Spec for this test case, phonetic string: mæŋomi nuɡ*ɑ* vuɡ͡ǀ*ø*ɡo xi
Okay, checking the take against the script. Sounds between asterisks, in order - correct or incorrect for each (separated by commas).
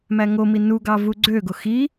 correct, correct